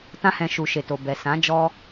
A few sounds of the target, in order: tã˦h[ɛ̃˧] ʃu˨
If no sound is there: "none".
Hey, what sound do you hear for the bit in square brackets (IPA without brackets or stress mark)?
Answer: ɛ̃˧